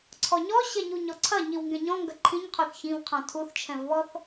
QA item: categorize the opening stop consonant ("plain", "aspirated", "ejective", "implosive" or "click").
click